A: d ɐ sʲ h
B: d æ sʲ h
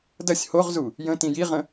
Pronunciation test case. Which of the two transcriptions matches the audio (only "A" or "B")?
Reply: A